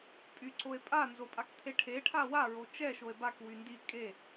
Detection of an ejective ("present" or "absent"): present